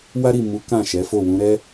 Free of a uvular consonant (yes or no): yes